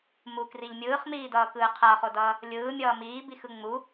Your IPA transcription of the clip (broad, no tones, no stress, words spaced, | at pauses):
mukriʎ mʲɯːχmiːdʌːkɯː qʰʌːχodʌː | lʲɯːmʲʌː miːbixɯ ŋ͡mu